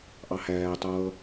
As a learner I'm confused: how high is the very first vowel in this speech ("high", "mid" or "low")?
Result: low